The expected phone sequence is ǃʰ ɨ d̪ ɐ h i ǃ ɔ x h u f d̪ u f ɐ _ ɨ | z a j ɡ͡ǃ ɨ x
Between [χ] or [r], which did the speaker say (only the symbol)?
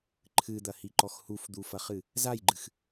χ